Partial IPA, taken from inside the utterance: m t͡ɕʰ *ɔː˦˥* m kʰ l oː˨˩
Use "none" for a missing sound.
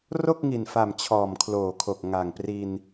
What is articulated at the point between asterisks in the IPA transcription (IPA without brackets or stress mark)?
ɔː˨˩